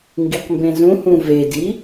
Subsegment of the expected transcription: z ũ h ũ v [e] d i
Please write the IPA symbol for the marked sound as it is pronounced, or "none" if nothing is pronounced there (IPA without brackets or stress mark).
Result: e